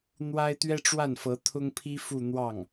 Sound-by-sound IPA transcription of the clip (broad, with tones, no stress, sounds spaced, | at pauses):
n̪ w a˥ ɪ̯ t̪ ɥ ɛ˥ ʈ͡ʂ w a˥˩ n f ɤ˧˥ t̪ʰ ʊ˥ ŋ pʰ i˥ f u˥˧ n̪ w ɑ˥˩ ŋ